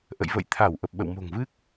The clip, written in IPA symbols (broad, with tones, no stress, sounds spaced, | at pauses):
ʔ ə̰˧˨ j v ə̰˧˨ j t̪ʰ a˧˩ w ʔ ə˨˩ p̚ ɓ ə̰˧˨ w m o̤˨˩ ŋ v ɨ˦˥ k̚